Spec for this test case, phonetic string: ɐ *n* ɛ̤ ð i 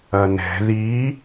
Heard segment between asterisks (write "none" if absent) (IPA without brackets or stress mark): n